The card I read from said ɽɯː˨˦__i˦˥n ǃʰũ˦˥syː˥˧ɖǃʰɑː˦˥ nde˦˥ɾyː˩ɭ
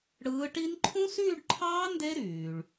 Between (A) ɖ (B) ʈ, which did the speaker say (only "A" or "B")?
B